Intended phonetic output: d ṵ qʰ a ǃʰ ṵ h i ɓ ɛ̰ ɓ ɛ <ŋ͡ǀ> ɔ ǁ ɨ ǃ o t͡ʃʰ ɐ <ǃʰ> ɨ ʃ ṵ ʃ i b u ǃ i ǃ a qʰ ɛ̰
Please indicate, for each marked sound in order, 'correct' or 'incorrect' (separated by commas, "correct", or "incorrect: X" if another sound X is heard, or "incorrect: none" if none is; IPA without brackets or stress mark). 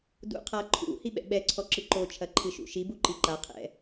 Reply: incorrect: ǀʰ, correct